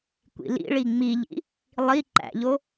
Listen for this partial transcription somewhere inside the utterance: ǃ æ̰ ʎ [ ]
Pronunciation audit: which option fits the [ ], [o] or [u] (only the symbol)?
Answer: o